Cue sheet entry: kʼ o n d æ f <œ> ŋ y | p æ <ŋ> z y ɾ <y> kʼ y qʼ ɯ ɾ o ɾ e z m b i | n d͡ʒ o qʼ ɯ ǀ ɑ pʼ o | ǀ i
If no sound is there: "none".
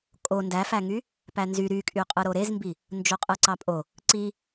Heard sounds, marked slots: æ, n, y

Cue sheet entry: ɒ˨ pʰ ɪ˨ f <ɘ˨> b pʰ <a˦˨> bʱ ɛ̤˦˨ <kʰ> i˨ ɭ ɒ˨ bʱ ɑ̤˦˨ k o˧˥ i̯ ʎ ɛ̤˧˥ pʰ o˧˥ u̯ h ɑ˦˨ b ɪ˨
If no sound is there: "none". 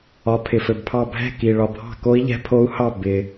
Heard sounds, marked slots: ɘ˨, ɑ˦˨, k

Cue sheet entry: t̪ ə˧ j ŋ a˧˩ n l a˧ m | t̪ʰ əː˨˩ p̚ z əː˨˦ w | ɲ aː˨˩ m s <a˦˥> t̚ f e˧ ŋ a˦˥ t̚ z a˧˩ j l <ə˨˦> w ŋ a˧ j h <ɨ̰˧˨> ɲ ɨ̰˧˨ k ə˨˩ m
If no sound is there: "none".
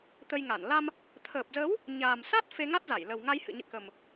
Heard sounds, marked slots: a˦˥, ə˨˩, ɨ̰˧˨

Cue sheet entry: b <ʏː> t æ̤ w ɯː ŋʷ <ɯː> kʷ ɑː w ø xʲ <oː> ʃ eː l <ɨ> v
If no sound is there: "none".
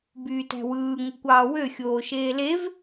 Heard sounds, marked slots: yː, ɯ, oː, e

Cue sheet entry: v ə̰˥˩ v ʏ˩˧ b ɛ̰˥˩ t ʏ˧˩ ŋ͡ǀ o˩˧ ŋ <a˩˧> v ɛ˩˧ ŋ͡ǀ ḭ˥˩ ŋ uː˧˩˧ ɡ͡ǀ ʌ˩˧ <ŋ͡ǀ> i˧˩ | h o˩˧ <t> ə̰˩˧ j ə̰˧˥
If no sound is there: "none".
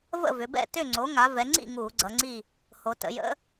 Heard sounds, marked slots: a˩˧, ŋ͡ǀ, t

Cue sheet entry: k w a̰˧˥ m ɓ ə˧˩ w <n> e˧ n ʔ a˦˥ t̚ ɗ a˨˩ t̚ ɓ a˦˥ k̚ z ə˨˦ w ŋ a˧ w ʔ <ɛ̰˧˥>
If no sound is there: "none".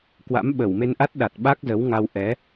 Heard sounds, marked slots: m, ɛ˨˦

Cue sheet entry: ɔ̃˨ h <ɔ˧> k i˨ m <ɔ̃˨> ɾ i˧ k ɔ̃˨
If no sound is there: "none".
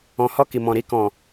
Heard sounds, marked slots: ɔ˧, ɔ̃˨

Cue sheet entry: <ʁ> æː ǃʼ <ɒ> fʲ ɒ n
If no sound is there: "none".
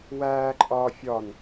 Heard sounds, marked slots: w, ɒː

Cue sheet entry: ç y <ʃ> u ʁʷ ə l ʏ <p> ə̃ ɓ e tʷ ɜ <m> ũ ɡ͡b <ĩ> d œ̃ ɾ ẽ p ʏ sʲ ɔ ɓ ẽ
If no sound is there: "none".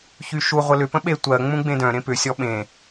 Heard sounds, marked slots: ʃ, p, ŋ͡m, ẽ

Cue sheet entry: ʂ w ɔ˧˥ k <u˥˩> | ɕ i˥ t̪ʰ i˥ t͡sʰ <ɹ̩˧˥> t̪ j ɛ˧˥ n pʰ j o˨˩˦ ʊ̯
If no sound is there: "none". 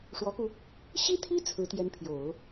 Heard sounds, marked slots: u˧, ɹ̩˧˥

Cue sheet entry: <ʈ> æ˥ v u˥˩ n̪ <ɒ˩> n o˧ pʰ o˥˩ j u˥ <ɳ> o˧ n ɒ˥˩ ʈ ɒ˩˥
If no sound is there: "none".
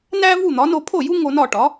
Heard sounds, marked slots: n, ɒ˩˥, ŋ

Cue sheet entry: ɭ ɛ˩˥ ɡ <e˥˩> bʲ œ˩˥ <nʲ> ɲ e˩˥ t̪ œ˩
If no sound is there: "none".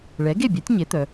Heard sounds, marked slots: e˥˩, tʲ

